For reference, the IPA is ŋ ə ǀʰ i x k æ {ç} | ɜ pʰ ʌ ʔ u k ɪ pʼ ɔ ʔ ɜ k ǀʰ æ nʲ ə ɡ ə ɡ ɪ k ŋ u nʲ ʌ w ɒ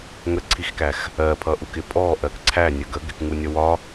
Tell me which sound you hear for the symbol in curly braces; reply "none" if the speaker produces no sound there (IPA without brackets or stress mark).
x